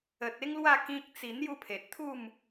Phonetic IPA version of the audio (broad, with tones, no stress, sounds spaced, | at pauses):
ə˨ t̚ e˦ ŋ l w a˥˧ k ĩ˦ k̚ t͡s i˧ n̪ j u˥˧ pʰ e˨ t̚ t̪ʰ u˥˧ m